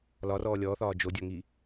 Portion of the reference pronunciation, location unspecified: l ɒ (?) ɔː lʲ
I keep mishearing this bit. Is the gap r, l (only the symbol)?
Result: r